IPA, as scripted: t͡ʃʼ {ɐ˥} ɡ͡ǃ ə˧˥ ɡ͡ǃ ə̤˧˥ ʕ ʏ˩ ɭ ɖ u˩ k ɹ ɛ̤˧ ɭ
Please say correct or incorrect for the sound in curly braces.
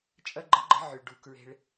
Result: correct